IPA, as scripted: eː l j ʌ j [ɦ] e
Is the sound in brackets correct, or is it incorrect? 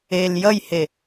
incorrect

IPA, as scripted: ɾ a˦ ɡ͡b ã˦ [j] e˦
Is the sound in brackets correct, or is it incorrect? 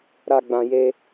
correct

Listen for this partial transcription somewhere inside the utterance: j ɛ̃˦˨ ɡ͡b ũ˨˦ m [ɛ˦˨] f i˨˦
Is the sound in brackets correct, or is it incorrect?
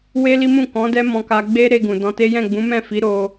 incorrect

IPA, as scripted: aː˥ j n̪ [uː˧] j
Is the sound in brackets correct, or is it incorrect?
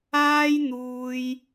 incorrect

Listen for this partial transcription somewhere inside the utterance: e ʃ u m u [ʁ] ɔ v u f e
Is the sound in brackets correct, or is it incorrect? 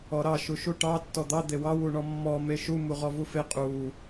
correct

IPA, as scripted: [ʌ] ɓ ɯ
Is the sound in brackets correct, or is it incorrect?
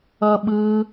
correct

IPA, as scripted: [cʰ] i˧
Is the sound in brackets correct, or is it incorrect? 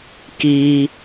incorrect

